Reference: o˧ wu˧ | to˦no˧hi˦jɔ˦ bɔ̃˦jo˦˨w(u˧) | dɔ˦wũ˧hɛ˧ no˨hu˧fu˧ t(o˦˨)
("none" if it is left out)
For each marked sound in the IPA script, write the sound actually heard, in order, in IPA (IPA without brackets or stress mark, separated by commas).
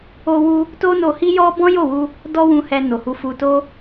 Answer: u˧, o˦